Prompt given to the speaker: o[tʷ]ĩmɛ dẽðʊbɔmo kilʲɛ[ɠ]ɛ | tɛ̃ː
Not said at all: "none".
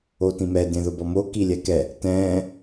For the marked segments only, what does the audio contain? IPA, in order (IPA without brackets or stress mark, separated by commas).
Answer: t, k